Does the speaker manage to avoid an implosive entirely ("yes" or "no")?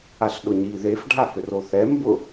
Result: no